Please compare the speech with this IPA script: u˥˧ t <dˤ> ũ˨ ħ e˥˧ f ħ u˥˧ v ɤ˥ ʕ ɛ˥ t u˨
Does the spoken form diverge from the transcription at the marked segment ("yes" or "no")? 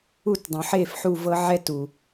no